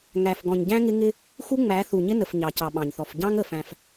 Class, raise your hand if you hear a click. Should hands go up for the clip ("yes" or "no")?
no